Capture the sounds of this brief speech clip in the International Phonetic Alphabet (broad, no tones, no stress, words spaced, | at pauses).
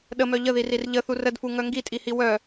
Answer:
ɗəmœ ʎəðirir ʎəθur ədfuŋœ ŋɡitʼihi wœ